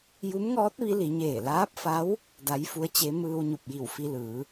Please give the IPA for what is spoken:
ju˧˥mŋɔː˧˥t̚ ʋi˧˥li˩˧ɲeː˧˩ laː˧˥p̚fa˧˥w | da˧˥jfu˧˥ə̯t͡ɕe˧˥ mɯː˧wɲu˧˩p̚ji˧˩w fi˧lɯː˩˧

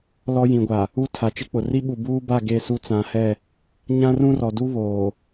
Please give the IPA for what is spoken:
lɔ˦jĩ˨ɡʷa˨ | u˦ tʰa˨t͡ʃɪ˦k͡pʊ˨ ri˦ɓu˨buː˦ba˦˨ ɡe˦˨su˦t͡sã˨˦hɛ˦˨ | ɲã˦rũ˦rɔ˨du˦ βoː˨

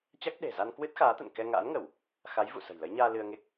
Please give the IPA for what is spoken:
t͡ɕa˦˥k̚ ɗe̤˨˩ za˧nkwɨ˦˥t̚xaː˨˦t̪ə̰˧˨n kɛ˧ŋa̰ː˧˥nŋə˧˩˨w | xa˨˦jvṵ˧˨sə̤˨˩j lə˨˦jɲaː˧ lɨ˧ə̯ŋe˦˥k̚

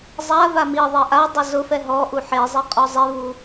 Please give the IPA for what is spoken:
zˤa vamiðˤɛ ʔadˤʊ zʊfɛ ɦɔʔu ħezˤi qʼɔzˤevu

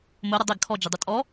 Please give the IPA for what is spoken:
mʊɾʊ dˤɪɡ kʰɔd͡ʒɪdˤʊ tʼɔ

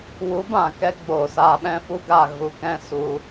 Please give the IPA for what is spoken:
wu˨˦bã˨kɛ˧ ɡ͡boː˨saː˧ɓɛ̃˦fu˦ ɡa˦˨ ɣu˧kɛ̃˦ su˧

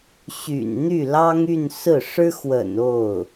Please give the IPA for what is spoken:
ɕy̰˨˩nn̪y˥˩lɑ˥ŋy˥˧n sɹ̩˥˩ ʂɻ̩˥xwə̰˨˩n o˥˩ʊ̯

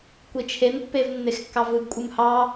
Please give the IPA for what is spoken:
kʷit͡ʃʰenpːev nːexkːɑvɯɡkʷʼɯm hɑ

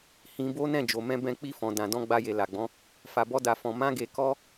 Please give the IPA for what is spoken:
hĩ˧bo˦ nɛ̃˦˨d͡ʒo˨mɛ̃˧ bɛ̃˧k͡pi˧fɔ̃˨dã˨ dɔ̃˧ɡ͡ba˧je˨ la˨ɡ͡bɔ̃˨˦ | fa˧bɔ˦da˧fɔ̃˧ mã˦ɡe˧kɔ˦

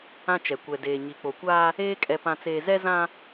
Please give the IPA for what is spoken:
ã˦t͡ʃɛ˨ kʷɛ˨deː˨ɲi˨ k͡po˨kʷaː˦ | eː˦ kʼɛ˨pã˨t͡seː˨ zɛ˦zã˦

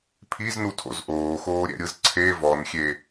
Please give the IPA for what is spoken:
pʰiznutʰo̰z ʔoːxoːɾʲɛ̰ɾʲɯz ǀʰe vɔnxʲe

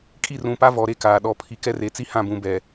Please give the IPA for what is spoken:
kʼi˦˨rũ˨pa˦ vɔ˨ɾe˦kaː˨ ɗɔ˨pʰi˨kɛ˦re˨˦ t͡si˦hã˦˨bũ˨ bɛ˨

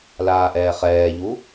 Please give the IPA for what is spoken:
laːʔɛːχɛːʎu

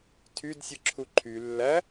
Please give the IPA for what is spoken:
tʰydsʲɯ ǁʰuǃʰy lːæ

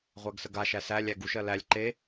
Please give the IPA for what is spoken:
ʁʷæɡsəɡaʃæ sælʲæɡ uʃɜ lælʲ ǃe

